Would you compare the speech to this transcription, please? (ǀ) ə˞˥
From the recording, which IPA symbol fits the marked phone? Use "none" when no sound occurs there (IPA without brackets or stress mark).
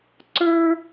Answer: ǀ